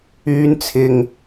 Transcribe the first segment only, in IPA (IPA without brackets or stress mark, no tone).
yː